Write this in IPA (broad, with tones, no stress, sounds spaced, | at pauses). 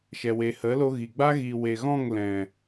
ʃ ɛ˨ w e˨ h ə˨˦ l o˧ ɣ i˨ ɡ͡b a˦ ɣ i˨ w e˨ ɣ ɔ̃˦˨ ŋ l ɛ̃˨